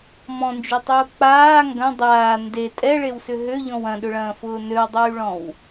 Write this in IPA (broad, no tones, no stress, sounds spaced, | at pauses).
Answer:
m ɔ̃ n d͡ʒ y tˤ ʊː k͡p aː ŋ ɡ ɐ̃ dˤ aː n d e tʼ ɛ ɭ e w s ʏ ɦ ø ʎ ɔ̃ w ɐ̃ ɗ ʏ ɭ ɐ̃ː f ʊː n ø w dˤ yː ɭ ɔ̃ w